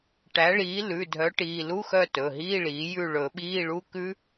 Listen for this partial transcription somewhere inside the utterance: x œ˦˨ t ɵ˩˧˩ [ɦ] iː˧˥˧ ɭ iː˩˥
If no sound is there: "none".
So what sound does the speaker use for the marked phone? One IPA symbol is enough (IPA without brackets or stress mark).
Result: ɦ